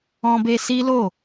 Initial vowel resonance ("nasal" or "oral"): nasal